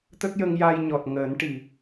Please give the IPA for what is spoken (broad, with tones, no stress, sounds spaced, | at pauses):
t̪ ə˦˥ k̚ j ə˧ ŋ j a˧ j ɲ ɔ˨˩ t̚ ŋ əː˨˩˦ n ʈ i˨˩